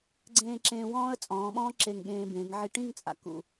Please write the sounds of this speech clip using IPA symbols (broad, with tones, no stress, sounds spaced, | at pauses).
ɡ͡ǀ ẽː˧ ǁ ẽː˧ w ɔ̃ː˥ ə̯ t͡sʼ ɔ̃ː˩˧ ɓ ɔ̃ː˥ ǁ e˧˩ ŋ ɠ ẽː˧ b ẽ˩˧ ŋ ʕ i˧˩ ʈ ĩ˥˧ ŋ t͡sʼ a̰˩˧ k ṵ˧˩